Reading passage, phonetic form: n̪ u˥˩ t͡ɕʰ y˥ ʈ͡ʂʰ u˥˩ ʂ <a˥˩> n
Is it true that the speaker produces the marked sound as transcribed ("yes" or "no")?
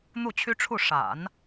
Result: no